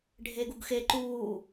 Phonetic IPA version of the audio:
ɖʱ e ɡ u ɡ x e ǃ uː

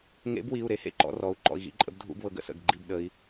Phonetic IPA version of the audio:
ŋ ḛ˨˥ b w i˩˧˩ u̯ ɾ e˨˥ h ḛ˥˨ ǃ ɔ̰˧ r ɔ˩˧˩ u̯ ǃ ɔ̰˩˧˩ i̯ ɣ ḭ˧ ǃʼ ə̰˨˥ b dʱ ṵ˥˨ b β ɤ˧ ɡ ə̰˨˥ s ə̰˩˧˩ ɡ ɡ͡ǃ i˥˨ b ɗ ə˨˥ i̯

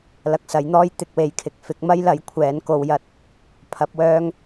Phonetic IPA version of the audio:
l ɐ˧ k̚ s ɐ˨˥ j n̪ ɔː˥ j t̪ ɪ˨ k̚ w e˨ j kʰ ɪ˨ k̚ f ɪ˨˥ k̚ m ɐ˥ j l ɐ˨˥ j kʷʰ ɛː˨˥ n k o˧ w j ɐ˥ t̚ | pʰ ɐ˨˥ p̚ w œː˥ ŋ

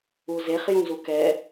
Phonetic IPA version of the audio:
u z e χ j ũ z u k ɛ

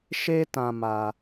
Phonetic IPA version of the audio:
ʃ e˦ t ã˧ m a˧

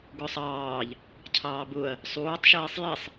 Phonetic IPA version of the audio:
ɡ ʊ sˤ ɑː ʎ | cʰ ɑː b ʊ ɐ̯ | sˤ uː tˤ ʃ iː sˤ j i sˤ

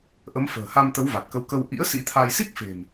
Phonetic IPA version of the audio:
ʔ ə˨˦ m f ə̤ː˨˩ h a˧ m t̪ ə˨˦ w v a˨˩ t̚ k ə˨˦ w k ə˧ w ʔ ḭ˧˥ ə̯ s ḭ˧˥ t̪ʰ a˧ j s i˦˥ k̚ f e̤˨˩ m

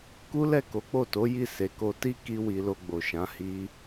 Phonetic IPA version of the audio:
k u˦ l ɛ˦˨ k o˨˦ k͡p o˦˨ t o˨˦ j i˦˨ s e˨ k o˧ t i˦ k i˦ w i˧ l o˧ ɡ͡b o˨ ʃ ã˨˦ h i˦

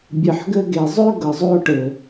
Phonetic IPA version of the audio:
bʲ ɯ˨ ħ ɡ ɘ˧ ɡ e˨ zˤ ø˦ ɡ ɤ˨ zˤ o˧ ʈ ɘ˨

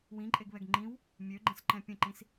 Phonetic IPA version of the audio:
w ĩ ǃʼ e ɡ β ɛ ɡ ŋ͡ǃ ĩ w | mʲ ø ɡ͡ǃ ə̃ s ǃ ɛ̃ pʲ ə̃ ǃ ĩ s

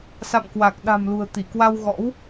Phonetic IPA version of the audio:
s a̰˧˨ m k w a˨˩ k̚ ɗ a̤˨˩ m l ṳ˨˩ ə̯ t̪ i˧˩ k w a˧ w ɣ ɔ̰˧˥ w

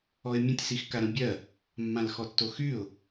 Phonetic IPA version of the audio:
ɔ ɪ̯ mʲ ə̃ tʲ s i x k a ɾ ə̃ bʲ ɜ | mː ã l x ɔ tː o x y ʊ̯

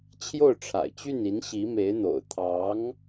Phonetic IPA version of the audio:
t͡ɕʰ j o˥˩ ʊ̯ ʈ͡ʂʰ a̰˨˩ ɪ̯ t͡ɕ y˥˩ n i˧˥ n ɕ i˧˥ m e˧˥ ɪ̯ n̪ o̰˨˩ ʊ̯ t̪ʰ ɑ˧˥ ŋ

